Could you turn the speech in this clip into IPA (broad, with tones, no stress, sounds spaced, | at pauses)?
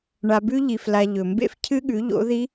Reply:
ɳ a˧ b ʉ˦˥ ʎ i˧ f l a˧ ʎ ɵ˩ m b ḛ˧ f cʰ ɨ˦˥ ɠ ʉ˨˥ ʎ o̰˨˥ ð i˦˥